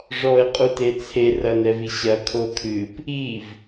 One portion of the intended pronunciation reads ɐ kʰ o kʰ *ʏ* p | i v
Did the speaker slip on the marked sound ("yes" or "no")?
yes